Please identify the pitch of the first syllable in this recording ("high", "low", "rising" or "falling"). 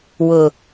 low